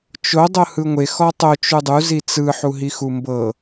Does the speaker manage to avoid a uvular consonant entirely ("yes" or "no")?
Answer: yes